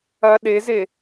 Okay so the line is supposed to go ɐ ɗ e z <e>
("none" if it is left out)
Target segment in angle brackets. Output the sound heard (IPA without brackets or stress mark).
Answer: e